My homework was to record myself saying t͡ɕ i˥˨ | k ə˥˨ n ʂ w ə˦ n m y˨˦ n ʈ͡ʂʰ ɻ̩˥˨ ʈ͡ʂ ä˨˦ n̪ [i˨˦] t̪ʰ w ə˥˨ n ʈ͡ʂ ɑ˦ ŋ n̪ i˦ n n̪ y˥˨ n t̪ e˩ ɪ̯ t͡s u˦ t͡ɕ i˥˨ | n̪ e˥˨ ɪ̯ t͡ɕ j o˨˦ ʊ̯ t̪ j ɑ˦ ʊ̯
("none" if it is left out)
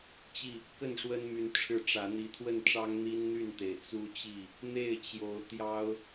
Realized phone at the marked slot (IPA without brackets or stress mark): i˨˦